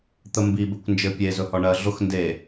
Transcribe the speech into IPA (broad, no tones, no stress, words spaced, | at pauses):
t̪əmbi bɘkʷnd͡ʒɘ pʲe zɵhɔɳɜ ɮʊx nde